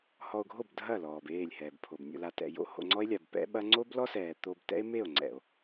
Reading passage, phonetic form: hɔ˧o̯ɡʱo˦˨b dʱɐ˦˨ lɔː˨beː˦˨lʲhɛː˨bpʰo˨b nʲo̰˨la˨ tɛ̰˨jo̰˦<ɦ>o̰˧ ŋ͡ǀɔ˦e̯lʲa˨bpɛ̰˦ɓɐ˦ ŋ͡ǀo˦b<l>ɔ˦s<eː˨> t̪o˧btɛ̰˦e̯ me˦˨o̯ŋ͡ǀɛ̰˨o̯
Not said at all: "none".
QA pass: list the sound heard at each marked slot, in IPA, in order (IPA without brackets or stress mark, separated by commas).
h, l, ɛː˨